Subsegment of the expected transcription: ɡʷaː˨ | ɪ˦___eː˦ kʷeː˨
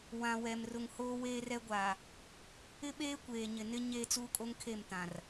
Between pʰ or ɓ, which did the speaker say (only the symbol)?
ɓ